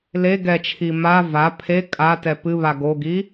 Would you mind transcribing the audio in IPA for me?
l e ɡ ɛ t͡ʃʰ i m a v a pʰ e kʼ a t ɛ p ɨ β a ɡ o ɡ i

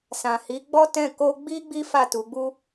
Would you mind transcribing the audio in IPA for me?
s ã˨ h i˨˦ ɡ͡b ɔ˦ t ɛ̃˦˨ k o˧ ɡ͡b i˦ ɡ͡b i˦ f a˦˨ t u˨˦ ɡ͡b u˦

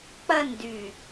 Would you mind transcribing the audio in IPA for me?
k͡p ɐ n d y

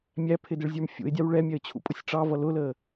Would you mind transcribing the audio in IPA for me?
mʲ æ pʰ ɪ d ɪ ɭ zʲ ə˞ m fʲ ṵ ɪ̯ dʲ ɑ w ɭ ɛ mʲ ɛ ə̯ t͡ɕʰ ṵ pʼ ʊ sʲ ʈ͡ʂ ɑ v ʌ l ʊ l əː

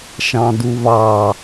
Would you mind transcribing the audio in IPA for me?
ʃ ɑ̃ d u β ɑ

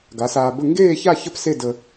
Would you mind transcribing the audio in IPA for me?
ɡ a˨˥ s aː˧ b ə˥˧ ŋ ɡ eː˥˧ ç a˥˧ ç ə˥˧ p s e˥˧ d ə˧

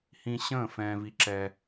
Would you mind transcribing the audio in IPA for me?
h ĩ˦ ɕ ə̃ː˥˨ f ɛ̃ː˦ v i˦ ǁ ɛ˦

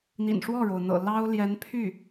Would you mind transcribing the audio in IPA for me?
n̪ ḭ˨˩ n ʂ w ɔ˥˩ ɻ o˩ ʊ̯ n̪ ɤ̰˨˩ l ɑ˥ ʊ̯ l j ɛ˧˥ n pʰ y˥˩

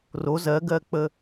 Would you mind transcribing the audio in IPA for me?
r o z ɜ ɡ ɜ k͡p ə

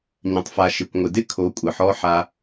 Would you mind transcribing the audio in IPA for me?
ɲ ə̃˨ tˤ f a˨ ʃ ɪ˨ kʷ ŋʷ ɪ˨ d ɪ˦ kʰ o˨˦ kʷʼ ə˨ ħ ɔ˦ ħ a˦

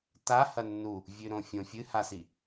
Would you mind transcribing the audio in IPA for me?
t a h ɐ nː u | vʲ ʉ ɾ õ fʲ õ fʲ ɨ h a s i

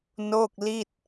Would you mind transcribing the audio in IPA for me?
n o˥˩ k̚ l i˥˩ t̚

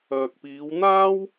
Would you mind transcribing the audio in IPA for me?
œː˨ k̚ p iː˨˧ w n̪ aː˥ w

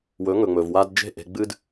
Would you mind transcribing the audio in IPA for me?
w ɵ˨˦ ŋ ɵ˨ ŋ͡m ɵ˨ v w a˦ d d͡ʒ e̤˦˨ ʔ e̤˧ ɡ͡b ɨ˦ d

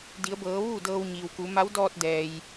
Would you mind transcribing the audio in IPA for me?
d i˩˧ ə̯ b ɤː˩˧ ʋ uː˥˨ d ɤː˧ w ɲ iː˩ w k u˩˧ m a˧˥ w d ɔː˧ t̚ d ɛː˩ j

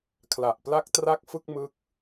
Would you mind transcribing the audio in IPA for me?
kʰ l a˨˩ ʔ p l a˦˥ k̚ t r a˦˥ k̚ f ɯ˥˩ k̚ m ɯ˦˥ k̚

